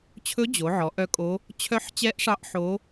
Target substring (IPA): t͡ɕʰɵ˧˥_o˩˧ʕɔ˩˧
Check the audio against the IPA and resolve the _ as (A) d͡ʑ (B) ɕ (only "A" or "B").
A